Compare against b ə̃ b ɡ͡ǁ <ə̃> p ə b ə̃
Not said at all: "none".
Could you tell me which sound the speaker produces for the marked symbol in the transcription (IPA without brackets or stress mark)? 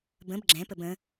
ɛ̃